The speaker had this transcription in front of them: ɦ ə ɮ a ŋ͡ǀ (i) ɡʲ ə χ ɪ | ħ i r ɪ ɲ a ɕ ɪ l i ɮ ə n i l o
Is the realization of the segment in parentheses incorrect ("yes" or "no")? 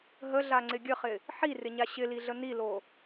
yes